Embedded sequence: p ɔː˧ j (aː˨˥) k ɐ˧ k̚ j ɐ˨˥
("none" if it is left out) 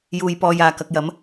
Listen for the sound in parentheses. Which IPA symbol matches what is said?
aː˨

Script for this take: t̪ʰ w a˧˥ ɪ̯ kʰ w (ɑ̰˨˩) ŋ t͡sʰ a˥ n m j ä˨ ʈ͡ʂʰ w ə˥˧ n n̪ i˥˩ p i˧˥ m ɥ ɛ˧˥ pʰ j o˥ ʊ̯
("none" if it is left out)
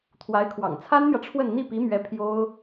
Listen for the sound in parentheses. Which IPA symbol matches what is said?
ɑ̰˨˩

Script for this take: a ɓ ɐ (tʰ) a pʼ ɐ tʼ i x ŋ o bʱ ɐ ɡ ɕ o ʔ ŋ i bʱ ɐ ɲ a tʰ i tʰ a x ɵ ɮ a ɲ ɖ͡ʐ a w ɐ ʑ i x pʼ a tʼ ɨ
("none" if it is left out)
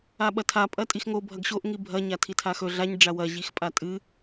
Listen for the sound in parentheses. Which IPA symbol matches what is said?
tʰ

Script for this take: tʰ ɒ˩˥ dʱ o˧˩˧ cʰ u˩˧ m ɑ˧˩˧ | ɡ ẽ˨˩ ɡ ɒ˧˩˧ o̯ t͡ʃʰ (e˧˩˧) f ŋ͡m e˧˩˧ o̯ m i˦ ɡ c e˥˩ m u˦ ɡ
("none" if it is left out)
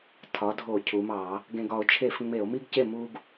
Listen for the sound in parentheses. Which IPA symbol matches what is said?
e˧˩˧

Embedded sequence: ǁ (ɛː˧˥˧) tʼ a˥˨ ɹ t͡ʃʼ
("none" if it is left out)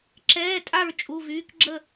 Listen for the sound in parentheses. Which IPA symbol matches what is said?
ɛː˧˥˧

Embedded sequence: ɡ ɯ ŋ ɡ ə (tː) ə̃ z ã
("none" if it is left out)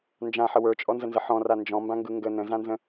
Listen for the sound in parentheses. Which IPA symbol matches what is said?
n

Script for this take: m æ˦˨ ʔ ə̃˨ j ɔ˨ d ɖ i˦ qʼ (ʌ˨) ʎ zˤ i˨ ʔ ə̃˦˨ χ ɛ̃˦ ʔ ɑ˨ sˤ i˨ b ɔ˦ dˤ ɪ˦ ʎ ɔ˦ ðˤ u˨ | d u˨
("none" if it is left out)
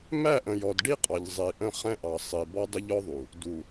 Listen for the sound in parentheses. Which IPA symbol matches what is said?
ɑ˨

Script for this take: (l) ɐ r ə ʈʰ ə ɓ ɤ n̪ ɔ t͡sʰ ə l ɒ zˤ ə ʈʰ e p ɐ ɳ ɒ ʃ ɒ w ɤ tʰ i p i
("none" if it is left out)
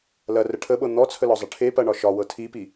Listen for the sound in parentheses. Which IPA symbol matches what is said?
l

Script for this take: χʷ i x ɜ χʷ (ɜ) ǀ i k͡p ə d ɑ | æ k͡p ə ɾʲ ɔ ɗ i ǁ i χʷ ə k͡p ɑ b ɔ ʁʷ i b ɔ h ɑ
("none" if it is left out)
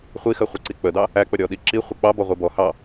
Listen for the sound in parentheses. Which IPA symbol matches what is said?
ɜ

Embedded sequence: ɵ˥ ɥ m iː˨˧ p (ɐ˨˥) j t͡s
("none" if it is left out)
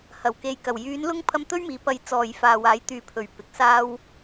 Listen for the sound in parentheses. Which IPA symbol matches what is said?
ɐ˨˥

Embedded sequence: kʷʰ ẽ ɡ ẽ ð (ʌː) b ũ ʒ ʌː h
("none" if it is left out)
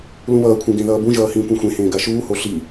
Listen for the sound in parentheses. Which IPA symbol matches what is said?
ʌː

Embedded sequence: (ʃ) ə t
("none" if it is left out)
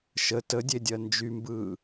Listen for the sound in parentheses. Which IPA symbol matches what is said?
ʃ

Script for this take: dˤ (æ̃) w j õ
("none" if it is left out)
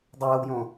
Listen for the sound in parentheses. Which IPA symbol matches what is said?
æ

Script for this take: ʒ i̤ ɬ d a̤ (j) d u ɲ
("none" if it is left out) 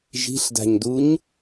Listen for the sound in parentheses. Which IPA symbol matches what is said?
ɲ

